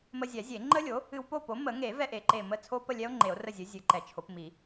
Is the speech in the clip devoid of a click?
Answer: no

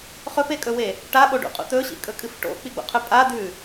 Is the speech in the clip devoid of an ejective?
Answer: no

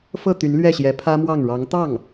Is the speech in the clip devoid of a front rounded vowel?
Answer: no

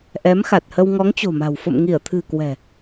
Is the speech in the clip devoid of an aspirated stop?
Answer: no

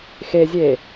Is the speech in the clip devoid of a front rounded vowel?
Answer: yes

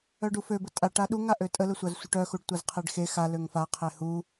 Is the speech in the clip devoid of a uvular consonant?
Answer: no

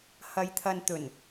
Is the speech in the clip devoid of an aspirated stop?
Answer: no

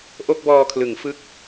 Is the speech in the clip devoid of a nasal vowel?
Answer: yes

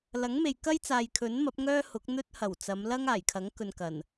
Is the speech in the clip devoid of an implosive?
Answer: yes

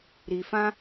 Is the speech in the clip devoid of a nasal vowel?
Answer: no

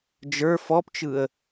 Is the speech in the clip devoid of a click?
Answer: yes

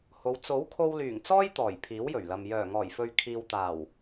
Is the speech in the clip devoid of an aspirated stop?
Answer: no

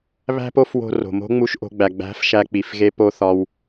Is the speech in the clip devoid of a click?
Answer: yes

